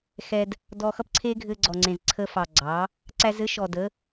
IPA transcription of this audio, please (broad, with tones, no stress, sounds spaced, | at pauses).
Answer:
x ɛ˧ d | d ɔ˧ x ʌ˦ p ǀʰ e˦ ɡʱ ɘ˧ ɡ͡ǀ ɔ˨ ŋ͡ǀ ẽ˨ z ǀʰ ə˧ f ɑ˨ ɡ͡ǀ ɑ˨˦ | ǀ æ˧ z ɘ˨˦ ʃ ɔ˨ d ə˨˦